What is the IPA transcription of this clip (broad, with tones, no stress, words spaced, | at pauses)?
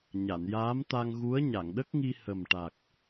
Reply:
ɲa˨˩˨njaː˧˥mt̪a˧ŋɣu˧˥ə̯ ɲa˨˩˨ŋɗə˦˥k̚ŋi˧ hə˨˩mʈa˨˩k̚